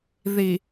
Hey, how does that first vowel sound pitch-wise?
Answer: low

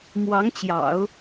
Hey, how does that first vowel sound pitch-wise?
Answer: rising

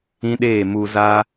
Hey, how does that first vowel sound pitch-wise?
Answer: high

